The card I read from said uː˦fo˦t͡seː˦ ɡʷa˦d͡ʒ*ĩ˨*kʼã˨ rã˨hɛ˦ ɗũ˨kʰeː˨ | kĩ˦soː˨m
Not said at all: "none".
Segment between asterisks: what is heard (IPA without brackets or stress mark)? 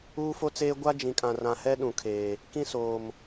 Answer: ĩ˨